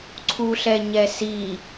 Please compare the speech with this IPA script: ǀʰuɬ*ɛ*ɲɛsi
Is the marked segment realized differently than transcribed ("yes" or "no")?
no